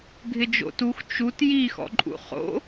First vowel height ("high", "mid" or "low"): high